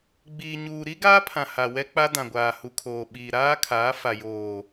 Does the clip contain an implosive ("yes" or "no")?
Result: yes